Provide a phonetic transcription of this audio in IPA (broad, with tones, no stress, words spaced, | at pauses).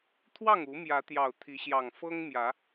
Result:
t̪ʰwɑ˥˨ŋu˨˦ mjä˨˦t̪jɑ˨˩ʊ̯ t̪ʰi˨˦ɕjɑ˨˩ŋ fɤ˦ŋ mjä˨˦